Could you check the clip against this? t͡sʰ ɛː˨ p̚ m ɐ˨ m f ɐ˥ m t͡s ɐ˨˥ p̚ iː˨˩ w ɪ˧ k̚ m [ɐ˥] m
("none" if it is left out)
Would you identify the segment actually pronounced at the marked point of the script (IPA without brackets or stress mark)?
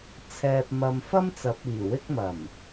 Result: ɐ˨˩